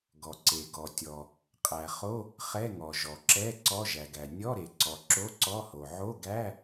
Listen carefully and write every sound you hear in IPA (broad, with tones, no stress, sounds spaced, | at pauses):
ɡ ɔ˩ ǀ e˩ ɡ ɔ˩ tʲ ɔ˩ | qʼ æ˩ χ o˧˥˧ | χ ɛ˧˥˧ ŋ ɔ˩ ʒ ɔ˩ ǁ ɛ˧˥˧ ǀ ɔ˧˥˧ ʒ æ˩ ɡ æ˩ nʲ ɔ˧˥˧ ɾ e˩ ǀ ɔ˩ ǁ o˧˥˧ ǀ ɔ˧˥˧ h o˩ ʕ o˧˥˧ ɡ æ˧˥˧